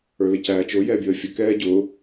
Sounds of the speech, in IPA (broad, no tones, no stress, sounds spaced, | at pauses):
ə˞ l ɪ c æː t͡ʃ ʊ j ɛ bʲ əː fʲ ə k ɛː ɟ ʊ